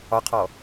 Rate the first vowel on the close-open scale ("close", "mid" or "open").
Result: open